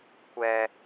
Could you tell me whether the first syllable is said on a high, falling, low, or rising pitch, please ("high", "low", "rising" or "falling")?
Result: high